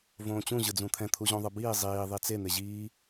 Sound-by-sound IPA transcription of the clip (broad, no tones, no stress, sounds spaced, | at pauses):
v õː t͡ɕ ũ ʑ ɯ d͡z ũ t̪ʰ ɛ̃ t̪ʰ u ʑ õ ðˤ ɯ b iː zˤ iː ðˤ i t͡s e n̪ e ʑ iː